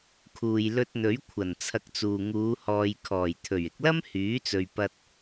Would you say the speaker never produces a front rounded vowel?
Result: no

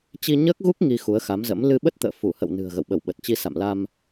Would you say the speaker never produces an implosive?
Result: no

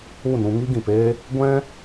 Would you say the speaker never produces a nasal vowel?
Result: no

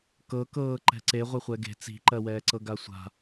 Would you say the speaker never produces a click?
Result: no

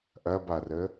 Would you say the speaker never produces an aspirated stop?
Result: yes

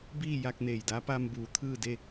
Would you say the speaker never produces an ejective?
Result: yes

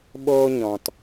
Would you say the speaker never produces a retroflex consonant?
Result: yes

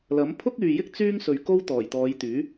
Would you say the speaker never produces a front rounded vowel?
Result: no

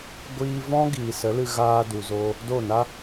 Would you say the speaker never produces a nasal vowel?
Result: no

